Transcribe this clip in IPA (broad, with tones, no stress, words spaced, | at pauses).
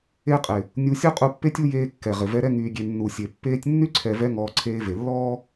e˦qʼɪ˨ | nʲu˧sʲu˦ qʼu˧pːe˦tʲu˦jeː˧ kːɛ˨ʁɪ˨vɛ˧ɾɛ˦ ŋyː˧ɡʲe˧ nːu˨sʲe˨ pːeː˧tʲnːy˦ǀʰɛ˨vɛ˧ ŋɔː˧ǀʰeː˧ve˨ lːɔː˦